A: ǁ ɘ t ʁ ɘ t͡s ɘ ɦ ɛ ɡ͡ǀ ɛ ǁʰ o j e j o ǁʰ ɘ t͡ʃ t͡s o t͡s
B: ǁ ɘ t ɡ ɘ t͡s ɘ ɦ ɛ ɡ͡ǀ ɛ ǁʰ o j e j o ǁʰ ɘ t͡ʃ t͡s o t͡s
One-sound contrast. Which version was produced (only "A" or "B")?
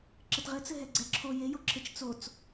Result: A